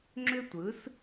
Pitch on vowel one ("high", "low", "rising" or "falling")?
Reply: high